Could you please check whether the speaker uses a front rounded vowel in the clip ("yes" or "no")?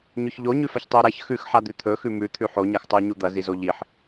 no